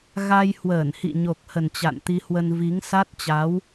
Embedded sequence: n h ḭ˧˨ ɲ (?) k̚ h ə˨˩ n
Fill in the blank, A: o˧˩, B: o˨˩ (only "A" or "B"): B